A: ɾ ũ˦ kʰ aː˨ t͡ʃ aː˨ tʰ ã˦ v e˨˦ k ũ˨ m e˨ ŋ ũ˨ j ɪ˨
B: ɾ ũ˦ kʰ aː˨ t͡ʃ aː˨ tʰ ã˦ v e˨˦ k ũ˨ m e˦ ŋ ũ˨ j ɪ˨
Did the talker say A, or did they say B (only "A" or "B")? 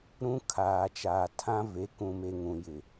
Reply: A